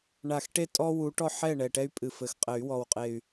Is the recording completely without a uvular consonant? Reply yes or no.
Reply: no